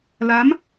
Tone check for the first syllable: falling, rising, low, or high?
rising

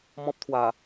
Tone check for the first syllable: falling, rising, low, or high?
high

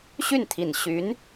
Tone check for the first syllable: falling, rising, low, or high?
falling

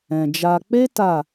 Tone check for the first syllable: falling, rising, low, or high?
low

